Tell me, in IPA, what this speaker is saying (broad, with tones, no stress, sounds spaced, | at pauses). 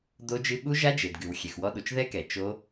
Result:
d o˦˥ d͡ʒ ɨ˦˥ ɠ u˦˥ ʒ a˦˥ d͡ʒ e˩ d ɡ ɨ˩ w xʲ ɛ˩ x w ɔ˦˥ ɗ u˩ t͡ʃ ð ɛ˦˥ k ɛ˩ t͡ʃ o˦˥